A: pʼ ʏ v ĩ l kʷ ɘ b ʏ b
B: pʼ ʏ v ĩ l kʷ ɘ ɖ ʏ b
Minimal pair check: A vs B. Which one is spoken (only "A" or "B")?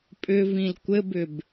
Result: A